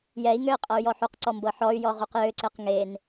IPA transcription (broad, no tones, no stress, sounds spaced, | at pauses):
j ɛ i̯ ŋ ø i̯ qʼ ɤ y̯ j ɔ ħ u q ǀ ɔ m b ɤ ħ ɔ y̯ j ɔ ʁ u q j ø ǀ e q ŋ e n